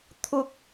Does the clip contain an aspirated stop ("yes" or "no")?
yes